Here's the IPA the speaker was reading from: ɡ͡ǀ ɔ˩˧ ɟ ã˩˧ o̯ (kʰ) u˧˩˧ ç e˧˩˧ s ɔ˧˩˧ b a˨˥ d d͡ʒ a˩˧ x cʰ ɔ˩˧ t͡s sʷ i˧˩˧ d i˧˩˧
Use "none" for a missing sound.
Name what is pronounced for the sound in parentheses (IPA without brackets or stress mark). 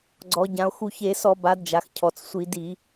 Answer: x